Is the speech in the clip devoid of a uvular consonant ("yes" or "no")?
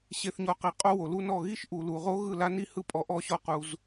no